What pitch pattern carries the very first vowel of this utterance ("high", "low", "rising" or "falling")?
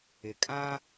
low